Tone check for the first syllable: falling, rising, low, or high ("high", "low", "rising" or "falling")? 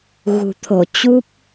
low